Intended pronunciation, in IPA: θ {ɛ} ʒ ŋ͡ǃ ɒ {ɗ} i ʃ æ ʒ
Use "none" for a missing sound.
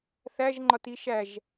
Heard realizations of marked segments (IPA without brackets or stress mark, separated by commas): æ, t